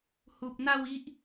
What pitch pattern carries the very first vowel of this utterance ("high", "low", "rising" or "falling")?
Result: low